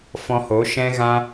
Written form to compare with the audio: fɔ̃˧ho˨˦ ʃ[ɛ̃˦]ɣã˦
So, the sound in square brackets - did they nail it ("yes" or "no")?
yes